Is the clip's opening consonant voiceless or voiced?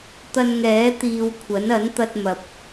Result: voiceless